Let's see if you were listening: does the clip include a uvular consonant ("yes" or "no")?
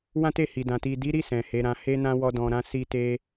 no